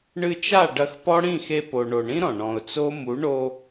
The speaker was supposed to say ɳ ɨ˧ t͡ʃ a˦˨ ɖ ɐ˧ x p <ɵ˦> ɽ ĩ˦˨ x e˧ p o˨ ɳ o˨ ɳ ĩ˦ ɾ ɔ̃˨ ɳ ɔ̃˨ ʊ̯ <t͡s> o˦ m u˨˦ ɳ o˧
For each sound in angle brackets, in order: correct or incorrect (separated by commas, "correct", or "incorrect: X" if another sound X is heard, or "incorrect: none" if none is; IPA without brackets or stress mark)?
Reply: incorrect: ɔ˦, correct